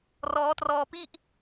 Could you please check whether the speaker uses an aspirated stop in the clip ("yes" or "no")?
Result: no